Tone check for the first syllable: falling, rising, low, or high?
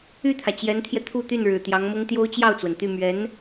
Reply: falling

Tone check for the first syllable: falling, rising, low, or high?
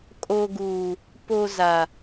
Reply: high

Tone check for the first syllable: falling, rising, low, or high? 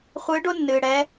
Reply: rising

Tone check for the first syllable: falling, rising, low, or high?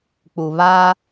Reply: low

